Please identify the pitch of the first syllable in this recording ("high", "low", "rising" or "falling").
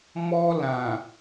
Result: high